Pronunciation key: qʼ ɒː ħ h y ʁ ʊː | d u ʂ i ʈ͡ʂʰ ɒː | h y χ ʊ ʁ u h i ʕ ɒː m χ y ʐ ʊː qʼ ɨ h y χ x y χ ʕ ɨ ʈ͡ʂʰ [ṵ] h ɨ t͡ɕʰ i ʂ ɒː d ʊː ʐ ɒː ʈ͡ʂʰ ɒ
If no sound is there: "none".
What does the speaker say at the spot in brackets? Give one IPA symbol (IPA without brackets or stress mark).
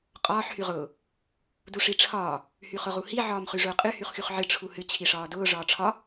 u